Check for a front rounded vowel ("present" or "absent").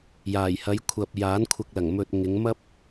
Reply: absent